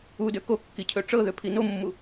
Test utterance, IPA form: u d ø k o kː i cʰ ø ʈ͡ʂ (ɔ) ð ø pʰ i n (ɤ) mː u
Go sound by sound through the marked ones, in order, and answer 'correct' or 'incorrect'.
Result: incorrect: ɤ, incorrect: o

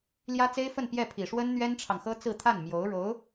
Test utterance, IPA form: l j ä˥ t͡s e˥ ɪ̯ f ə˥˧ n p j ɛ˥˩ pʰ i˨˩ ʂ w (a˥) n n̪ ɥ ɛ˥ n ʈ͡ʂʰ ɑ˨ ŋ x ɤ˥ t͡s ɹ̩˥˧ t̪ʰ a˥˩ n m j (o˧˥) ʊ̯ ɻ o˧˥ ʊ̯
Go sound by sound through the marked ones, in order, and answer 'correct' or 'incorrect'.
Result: incorrect: ə˥, correct

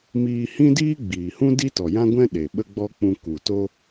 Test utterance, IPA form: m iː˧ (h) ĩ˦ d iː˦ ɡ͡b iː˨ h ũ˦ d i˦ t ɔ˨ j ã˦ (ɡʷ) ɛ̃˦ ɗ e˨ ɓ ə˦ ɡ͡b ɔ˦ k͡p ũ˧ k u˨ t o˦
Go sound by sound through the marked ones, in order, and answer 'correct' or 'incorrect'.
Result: correct, correct

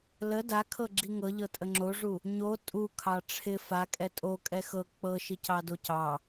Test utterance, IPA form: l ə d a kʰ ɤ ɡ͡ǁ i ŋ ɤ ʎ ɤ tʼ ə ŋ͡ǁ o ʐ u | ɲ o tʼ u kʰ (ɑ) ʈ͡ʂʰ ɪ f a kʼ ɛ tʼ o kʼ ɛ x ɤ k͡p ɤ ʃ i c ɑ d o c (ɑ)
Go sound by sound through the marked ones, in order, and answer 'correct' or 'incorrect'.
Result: correct, correct

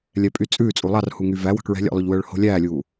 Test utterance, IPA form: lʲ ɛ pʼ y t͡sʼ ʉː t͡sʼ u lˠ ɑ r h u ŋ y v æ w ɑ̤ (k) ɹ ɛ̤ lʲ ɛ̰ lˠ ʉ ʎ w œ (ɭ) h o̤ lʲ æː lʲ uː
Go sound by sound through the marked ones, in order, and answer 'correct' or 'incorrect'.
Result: correct, correct

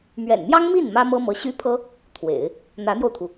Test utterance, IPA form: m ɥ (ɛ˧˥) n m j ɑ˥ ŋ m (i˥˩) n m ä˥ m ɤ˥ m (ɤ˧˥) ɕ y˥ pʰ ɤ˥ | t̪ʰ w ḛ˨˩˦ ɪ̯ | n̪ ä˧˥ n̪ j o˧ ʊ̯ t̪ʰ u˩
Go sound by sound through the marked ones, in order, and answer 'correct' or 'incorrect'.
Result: incorrect: ɛ̰˨˩, correct, correct

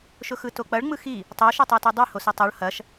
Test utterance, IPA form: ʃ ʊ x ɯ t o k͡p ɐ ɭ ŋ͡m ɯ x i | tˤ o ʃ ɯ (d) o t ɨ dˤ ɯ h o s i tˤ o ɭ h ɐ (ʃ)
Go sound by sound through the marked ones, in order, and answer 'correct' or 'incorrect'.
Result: incorrect: tˤ, correct

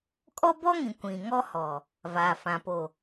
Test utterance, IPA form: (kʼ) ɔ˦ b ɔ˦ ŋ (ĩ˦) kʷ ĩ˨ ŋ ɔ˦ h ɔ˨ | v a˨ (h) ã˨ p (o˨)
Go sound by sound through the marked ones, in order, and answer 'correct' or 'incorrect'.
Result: correct, incorrect: ĩ˨, incorrect: f, correct

